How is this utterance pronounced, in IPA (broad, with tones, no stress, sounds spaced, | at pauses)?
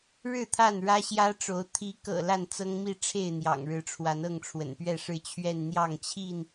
ɻ ɻ̩˥˨ t̪ʰ a˥˨ n ɻ ä˦ ɕ j ä˦ ʈ͡ʂ o˨˦ ʊ̯ t̪ʰ i˨˦ k ɤ̰˨˩ l a˥˨ n t͡s ɤ˦ ŋ m i˥˨ ʈ͡ʂʰ e˥˨ ɪ̯ n̪ j ɑ̰˨˩ ŋ ɻ ɻ̩˨˦ ʈ͡ʂʰ w a˨˦ n ɤ˥˨ ŋ ʈ͡ʂʰ w ə̰˨˩ n p ɥ ɛ˥˨ ʂ ɻ̩˥˨ t͡ɕʰ ɥ ɛ˥˨ n n̪ j ɑ˥˨ ŋ t͡ɕʰ i˥˨ n